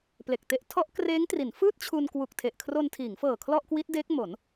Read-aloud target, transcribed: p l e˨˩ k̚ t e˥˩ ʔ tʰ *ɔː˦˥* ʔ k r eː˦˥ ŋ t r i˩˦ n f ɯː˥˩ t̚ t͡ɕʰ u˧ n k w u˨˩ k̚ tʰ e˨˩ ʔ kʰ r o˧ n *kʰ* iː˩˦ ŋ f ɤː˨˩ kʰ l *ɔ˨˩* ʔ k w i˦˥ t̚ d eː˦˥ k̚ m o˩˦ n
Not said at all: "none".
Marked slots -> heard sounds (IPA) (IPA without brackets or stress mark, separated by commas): ɔ˦˥, tʰ, ɔ˥˩